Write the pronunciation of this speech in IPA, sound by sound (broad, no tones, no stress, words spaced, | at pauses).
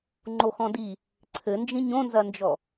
ŋ͡ǃoxɔ̃di | ǀʰɘnd͡ʒĩ ɲõnzɐnd͡ʒɔ